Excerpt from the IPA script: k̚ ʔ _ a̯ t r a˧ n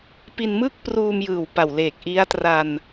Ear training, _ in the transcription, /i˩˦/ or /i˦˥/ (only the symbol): i˦˥